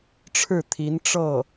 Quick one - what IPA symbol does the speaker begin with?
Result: ʈ͡ʂʰ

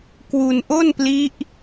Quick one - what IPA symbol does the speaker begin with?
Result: k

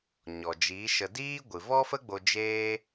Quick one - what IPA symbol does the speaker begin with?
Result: ɲ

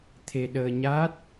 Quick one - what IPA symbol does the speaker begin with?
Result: t̪ʰ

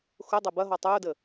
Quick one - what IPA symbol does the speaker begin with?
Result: x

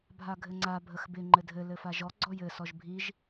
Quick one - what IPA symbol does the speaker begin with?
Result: bʱ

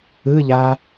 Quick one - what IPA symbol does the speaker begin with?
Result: ɯ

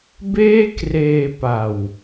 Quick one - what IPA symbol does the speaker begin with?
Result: b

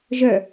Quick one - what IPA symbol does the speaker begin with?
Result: ʒ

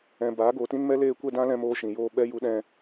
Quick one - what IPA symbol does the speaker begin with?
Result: ɛ̃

